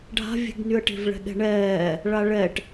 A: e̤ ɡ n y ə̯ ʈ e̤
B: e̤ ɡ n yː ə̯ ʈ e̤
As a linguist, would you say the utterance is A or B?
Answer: A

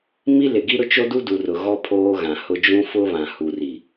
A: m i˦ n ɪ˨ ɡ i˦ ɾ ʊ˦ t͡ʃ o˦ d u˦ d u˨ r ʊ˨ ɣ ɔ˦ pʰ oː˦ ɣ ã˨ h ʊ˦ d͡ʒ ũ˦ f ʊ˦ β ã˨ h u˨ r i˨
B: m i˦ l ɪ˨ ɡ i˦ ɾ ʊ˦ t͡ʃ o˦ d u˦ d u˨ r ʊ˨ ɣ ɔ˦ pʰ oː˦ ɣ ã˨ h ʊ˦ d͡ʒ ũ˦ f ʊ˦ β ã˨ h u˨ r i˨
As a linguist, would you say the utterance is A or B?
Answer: B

